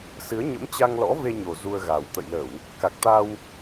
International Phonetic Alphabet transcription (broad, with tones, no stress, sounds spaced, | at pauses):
s ɨ˨˦ ə̯ ɲ ə̰˧˥ m t͡ɕ a˧ ŋ l ɔ̰˧˥ v e˧ ɲ o˨˩ z u˧ ə̯ ɣ a˨˩ w t̪ ə̰˧˨ j l ə˧˩˨ w | k a˨˩ k̚ t̪ a˧ w